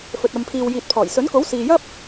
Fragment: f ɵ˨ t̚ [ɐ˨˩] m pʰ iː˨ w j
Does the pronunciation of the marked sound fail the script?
yes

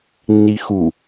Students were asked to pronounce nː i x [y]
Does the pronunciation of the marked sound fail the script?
yes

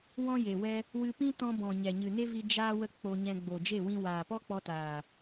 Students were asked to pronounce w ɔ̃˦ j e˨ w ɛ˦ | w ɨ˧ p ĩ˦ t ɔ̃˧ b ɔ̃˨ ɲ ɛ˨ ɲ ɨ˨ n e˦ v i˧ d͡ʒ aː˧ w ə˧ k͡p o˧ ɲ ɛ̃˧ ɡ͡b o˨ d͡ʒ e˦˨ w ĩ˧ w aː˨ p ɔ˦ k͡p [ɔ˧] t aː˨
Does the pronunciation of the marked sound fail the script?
no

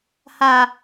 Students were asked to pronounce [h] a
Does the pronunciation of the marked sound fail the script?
no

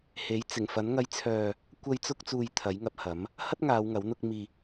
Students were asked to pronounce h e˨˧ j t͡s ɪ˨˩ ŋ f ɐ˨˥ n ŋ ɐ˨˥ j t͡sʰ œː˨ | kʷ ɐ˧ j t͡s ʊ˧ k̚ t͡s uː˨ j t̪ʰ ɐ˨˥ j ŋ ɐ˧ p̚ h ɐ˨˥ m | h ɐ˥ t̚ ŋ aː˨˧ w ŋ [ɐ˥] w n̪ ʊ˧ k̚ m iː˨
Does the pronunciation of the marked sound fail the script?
yes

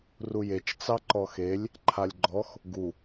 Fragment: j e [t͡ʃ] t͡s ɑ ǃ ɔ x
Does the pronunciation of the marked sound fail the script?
no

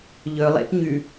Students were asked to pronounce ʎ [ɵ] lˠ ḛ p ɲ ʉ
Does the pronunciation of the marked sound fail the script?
no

